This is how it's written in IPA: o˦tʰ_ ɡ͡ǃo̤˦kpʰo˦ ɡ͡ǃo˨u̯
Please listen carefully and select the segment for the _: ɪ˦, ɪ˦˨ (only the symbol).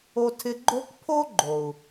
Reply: ɪ˦